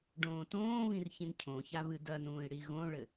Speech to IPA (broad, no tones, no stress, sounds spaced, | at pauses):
ɖ õː t õː β ĩ r ç ĩ n cʰ õ ç a β ɨ d ɐ n ũː i̯ ɽ i ɣ õ ɭ ɘ